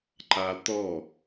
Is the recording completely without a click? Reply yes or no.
no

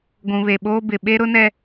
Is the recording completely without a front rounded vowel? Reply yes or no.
yes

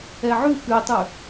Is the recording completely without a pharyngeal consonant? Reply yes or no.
no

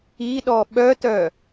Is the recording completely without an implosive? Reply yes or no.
no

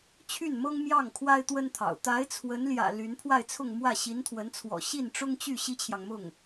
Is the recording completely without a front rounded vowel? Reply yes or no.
no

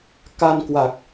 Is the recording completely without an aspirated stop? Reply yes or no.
yes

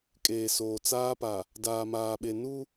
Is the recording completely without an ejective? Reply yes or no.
no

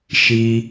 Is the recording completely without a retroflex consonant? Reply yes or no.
yes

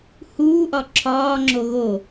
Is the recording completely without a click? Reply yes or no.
no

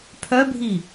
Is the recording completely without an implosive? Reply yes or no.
yes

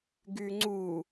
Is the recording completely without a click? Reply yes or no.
no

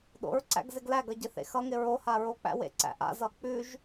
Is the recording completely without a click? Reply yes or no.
no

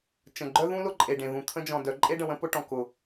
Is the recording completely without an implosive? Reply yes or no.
yes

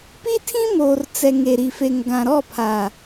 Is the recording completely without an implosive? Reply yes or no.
yes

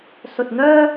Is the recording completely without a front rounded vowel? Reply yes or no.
no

